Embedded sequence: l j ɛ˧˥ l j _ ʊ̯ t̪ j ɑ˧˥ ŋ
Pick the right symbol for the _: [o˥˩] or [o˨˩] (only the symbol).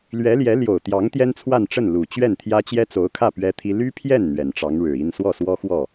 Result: o˨˩